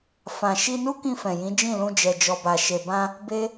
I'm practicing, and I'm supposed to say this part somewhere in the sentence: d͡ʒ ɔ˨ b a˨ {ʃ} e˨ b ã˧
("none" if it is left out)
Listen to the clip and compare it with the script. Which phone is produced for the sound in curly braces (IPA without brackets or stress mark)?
ʃ